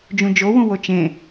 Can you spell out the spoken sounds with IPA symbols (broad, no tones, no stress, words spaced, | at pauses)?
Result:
d͡ʒũd͡ʒowũ wot͡ʃẽ